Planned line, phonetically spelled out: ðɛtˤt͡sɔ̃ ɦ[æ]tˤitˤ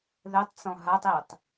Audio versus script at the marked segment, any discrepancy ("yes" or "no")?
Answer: yes